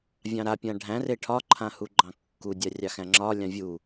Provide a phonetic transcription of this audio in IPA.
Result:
vʲ ɑ̃ ɾ a pʲ ã ɖʱ æ̃ r e ʈʰ ɒ ǃʰ ã h u ɡ͡ǃ ɑ̃ kː u dʲ a rʲ ɑ x æ̃ ŋ͡ǁ ɒ lʲ ɑ̃ vʲ u

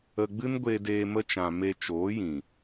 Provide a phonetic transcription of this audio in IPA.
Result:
ə˧ ɡ͡b ɨ˦ n ɡʷ e˧ d eː˧ m ə˧ t͡ʃ ã˨ m e˧ t͡ʃ oː˨˦ j ĩ˨

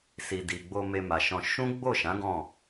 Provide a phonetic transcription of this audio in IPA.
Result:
s i˨ d i˨ ɡ͡b o˧ m e˧ m a˨ ʃ ɔ̃˧ ʃ ũ˦ ɡ͡b o˦˨ ʃ ã˨˦ ɡ ɔ̃˦˨

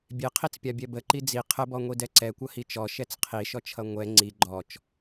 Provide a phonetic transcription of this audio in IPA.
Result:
bʲ e qʰ i t͡s pʲ a bʲ ɛ b ə ǃ i d͡z i qʰ ə b ɔ ŋʷ i d ɛ ǀ ɛ kʷ ʌ h i t͡ʃ ɔ ʃ ɛ t͡s qʰ i ʃ ɔ t͡ʃʰ ʌ ŋʷ ɛ ŋ͡ǀ i ɡ͡ǃ ɔ t͡ʃ

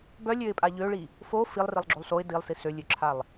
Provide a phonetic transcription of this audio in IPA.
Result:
b œ lʲ ø ɪ̯ pʼ a ʎ ø ɭ i | f o f i lˠ r i lˠ ɡ͡ǁ o lˠ s o ɪ̯ d i lˠ s i s ø lʲ ø ǁʰ a lˠ

